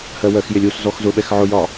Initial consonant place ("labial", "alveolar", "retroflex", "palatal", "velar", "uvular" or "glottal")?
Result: glottal